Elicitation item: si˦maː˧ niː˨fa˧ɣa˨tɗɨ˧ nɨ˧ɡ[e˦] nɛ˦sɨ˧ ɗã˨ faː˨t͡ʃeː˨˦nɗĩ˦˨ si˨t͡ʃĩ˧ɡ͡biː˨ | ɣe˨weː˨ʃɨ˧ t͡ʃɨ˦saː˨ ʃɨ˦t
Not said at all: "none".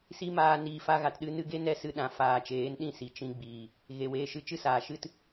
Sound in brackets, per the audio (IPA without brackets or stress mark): e˦